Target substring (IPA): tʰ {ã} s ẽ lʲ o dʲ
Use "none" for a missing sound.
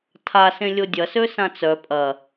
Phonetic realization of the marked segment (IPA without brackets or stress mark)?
a